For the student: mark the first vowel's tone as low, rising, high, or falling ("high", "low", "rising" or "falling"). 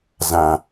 low